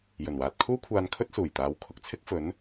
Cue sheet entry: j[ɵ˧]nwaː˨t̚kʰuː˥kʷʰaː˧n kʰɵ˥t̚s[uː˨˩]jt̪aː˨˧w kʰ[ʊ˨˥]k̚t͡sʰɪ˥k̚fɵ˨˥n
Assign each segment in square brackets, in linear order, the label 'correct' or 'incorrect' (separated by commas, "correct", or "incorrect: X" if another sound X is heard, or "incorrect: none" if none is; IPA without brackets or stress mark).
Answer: incorrect: ɵ˨˩, correct, incorrect: ʊ˧